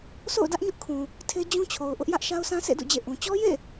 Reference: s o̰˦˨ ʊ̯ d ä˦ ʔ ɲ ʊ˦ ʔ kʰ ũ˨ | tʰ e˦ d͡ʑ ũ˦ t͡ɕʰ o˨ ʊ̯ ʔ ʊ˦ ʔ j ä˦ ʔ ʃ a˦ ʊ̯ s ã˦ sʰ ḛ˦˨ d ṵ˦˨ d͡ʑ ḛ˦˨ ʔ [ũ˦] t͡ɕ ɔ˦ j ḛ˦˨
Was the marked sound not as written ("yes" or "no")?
yes